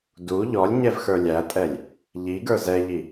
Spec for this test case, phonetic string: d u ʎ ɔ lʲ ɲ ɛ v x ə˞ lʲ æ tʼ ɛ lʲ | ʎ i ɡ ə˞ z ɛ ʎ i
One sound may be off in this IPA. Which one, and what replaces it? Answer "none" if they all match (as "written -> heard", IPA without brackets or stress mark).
none